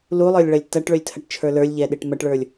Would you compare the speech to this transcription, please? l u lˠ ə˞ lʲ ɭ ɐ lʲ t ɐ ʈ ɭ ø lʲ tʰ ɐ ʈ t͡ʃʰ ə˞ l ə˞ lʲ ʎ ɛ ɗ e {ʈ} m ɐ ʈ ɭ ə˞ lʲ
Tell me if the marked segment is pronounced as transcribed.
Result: yes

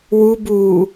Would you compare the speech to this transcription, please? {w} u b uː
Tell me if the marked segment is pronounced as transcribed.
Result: yes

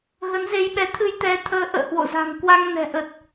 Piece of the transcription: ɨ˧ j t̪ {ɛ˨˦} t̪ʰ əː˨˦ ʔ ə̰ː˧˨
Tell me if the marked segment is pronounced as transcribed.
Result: yes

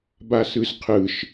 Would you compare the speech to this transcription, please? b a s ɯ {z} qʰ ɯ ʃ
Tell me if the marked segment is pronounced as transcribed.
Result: yes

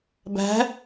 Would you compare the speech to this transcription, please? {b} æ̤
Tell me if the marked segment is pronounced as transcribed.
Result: yes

